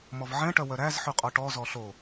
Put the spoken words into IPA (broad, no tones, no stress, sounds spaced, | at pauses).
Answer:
m ɔ v ʕ ɛ̃ ʈ œ w œ ɾ æ z ħ ʉ qʼ ɔ ʈ ɔ z ɔ ɬ o